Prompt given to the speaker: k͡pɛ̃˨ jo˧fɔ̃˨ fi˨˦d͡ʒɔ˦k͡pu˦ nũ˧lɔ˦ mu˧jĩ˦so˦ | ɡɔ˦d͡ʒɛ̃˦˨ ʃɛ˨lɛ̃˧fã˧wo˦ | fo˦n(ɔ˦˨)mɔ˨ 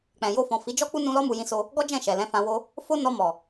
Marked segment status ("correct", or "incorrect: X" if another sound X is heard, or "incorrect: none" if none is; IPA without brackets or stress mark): incorrect: ɔ˧